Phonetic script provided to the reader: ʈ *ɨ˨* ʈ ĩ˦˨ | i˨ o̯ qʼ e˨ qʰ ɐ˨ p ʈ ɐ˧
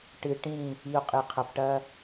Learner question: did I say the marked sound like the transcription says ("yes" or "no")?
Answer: yes